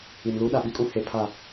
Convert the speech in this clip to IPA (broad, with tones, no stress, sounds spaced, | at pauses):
i˨ n l uː˦ ɗ a˨ ɓ i˦ kʼ ũ˦ h e˨˦ pʰ a˦˨